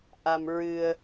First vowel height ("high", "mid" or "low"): low